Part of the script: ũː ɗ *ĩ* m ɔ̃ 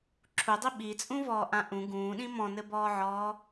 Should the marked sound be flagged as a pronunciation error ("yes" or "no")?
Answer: no